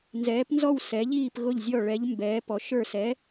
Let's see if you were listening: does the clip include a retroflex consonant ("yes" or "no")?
yes